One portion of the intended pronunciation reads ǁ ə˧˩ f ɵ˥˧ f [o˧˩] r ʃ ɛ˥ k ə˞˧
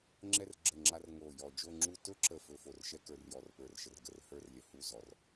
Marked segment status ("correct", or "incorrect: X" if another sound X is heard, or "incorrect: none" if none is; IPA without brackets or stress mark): correct